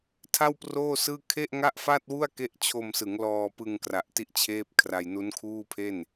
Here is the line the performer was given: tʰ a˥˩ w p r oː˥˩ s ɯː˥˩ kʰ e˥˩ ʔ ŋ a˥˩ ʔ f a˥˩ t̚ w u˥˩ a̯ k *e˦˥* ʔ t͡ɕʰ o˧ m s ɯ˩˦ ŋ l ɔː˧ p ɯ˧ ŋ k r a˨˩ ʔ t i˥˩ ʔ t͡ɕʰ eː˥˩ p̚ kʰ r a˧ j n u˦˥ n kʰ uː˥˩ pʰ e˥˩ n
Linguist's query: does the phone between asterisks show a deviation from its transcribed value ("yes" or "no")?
no